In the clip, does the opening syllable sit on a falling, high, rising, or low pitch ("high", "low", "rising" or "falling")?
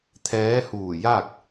rising